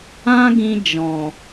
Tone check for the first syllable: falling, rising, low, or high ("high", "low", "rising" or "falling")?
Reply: high